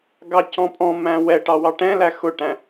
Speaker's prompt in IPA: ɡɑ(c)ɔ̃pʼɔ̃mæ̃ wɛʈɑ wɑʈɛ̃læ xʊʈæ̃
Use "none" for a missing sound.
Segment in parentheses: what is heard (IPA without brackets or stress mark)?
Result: c